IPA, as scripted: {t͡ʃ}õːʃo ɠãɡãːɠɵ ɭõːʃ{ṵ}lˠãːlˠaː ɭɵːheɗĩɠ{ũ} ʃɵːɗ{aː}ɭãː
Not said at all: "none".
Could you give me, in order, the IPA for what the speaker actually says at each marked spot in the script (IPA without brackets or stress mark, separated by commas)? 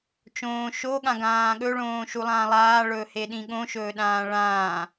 t͡ʃ, u, õ, ãː